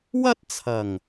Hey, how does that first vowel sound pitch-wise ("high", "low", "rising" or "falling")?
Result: high